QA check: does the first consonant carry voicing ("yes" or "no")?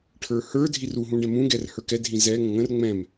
no